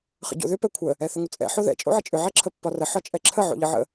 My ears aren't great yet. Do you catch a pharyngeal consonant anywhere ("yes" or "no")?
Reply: yes